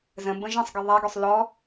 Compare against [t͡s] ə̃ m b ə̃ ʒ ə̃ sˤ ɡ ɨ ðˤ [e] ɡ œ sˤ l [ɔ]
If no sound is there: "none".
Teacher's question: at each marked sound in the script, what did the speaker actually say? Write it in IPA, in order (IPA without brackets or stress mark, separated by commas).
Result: z, ɛ, ɔ